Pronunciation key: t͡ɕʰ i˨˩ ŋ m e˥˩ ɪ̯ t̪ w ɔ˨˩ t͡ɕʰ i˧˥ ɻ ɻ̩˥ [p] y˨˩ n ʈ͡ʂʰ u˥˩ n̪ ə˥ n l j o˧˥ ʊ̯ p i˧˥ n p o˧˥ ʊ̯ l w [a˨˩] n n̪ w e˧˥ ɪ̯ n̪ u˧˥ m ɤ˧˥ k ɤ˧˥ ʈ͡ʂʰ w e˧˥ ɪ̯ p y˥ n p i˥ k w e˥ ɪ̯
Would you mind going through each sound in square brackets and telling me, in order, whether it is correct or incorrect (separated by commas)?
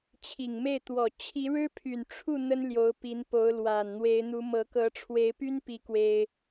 incorrect, correct